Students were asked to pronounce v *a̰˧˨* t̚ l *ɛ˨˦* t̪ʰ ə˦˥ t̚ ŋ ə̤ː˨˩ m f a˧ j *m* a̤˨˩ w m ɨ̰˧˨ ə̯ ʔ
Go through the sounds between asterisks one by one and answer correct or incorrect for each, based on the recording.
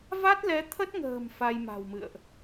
incorrect: a˦˥, correct, correct

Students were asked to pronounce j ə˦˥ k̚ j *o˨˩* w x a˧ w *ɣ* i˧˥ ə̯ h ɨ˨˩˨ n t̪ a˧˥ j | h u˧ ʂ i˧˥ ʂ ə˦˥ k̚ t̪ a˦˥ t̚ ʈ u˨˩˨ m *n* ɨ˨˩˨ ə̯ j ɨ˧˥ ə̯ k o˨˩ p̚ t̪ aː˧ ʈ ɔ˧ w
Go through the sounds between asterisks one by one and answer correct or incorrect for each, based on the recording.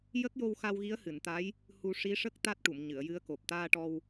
incorrect: o˧, correct, incorrect: ɲ

